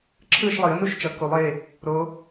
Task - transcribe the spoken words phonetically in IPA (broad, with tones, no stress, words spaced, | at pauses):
ǁʰɯː˥˨ʃlˠi˨˩˦ə̯nu˥˨ʃt͡ʃʌ˨˩˦ ku˨˩˦lˠe˩˧˩ | ɾo˨˦